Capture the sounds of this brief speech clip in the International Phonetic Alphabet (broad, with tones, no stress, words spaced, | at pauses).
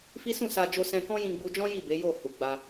fi˦ sũ˦˨sa˧d͡ʒo˧sɛ̃˧ kɔ̃˦jĩ˧ɡ͡bu˧d͡ʒɔ̃˦ ji˦˨be˨˦ jo˦˨hu˨ɡ͡ba˧